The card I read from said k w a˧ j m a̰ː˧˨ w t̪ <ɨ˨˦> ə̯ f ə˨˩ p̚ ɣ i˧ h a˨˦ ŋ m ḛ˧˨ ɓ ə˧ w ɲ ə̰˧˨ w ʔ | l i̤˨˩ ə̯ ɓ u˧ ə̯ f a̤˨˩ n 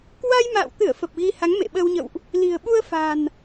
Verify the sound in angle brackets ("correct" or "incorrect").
incorrect